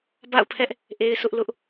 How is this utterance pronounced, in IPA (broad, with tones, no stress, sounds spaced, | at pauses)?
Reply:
b a̰˦˨ ʊ̯ pʰ ɛ˦ ʔ | ʔ e˦ ɪ̯ s ʊ˦ ʔ l ʊ˦ ʔ